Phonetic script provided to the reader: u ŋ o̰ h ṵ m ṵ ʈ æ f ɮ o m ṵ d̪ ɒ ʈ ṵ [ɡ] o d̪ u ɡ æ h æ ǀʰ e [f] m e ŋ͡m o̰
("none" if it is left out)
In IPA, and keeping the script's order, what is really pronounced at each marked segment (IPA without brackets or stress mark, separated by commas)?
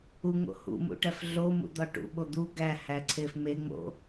ɓ, f